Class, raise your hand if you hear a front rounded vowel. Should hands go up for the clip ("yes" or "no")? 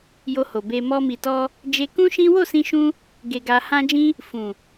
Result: no